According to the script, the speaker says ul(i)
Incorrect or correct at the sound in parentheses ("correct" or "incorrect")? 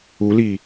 correct